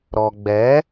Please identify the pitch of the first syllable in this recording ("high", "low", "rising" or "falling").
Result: low